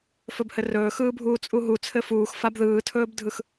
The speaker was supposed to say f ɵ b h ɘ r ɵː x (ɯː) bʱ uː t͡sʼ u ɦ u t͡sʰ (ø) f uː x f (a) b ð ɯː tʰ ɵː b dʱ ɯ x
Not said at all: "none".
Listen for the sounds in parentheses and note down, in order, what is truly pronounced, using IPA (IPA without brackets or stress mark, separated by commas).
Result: ɯː, ɘ, a